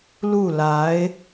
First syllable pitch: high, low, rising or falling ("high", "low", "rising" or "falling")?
falling